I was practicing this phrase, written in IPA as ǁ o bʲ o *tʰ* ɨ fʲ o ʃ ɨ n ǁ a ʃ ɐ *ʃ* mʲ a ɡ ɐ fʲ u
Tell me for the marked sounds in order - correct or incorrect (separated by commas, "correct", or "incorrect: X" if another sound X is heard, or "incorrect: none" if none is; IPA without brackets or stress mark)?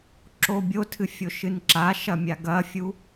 correct, incorrect: none